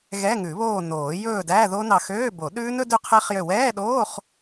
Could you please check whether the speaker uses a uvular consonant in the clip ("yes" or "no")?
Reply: yes